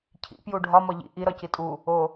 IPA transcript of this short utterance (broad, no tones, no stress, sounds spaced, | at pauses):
cʰ ḭ p j u ɖʱ ɒ m ɒ ʎ ḭ ʔ i ɾ ɒ c i tʼ u | o